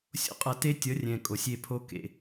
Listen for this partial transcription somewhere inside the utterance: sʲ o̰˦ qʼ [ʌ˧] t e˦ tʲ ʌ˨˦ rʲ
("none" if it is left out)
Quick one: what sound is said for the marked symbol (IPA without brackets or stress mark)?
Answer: ʌ˧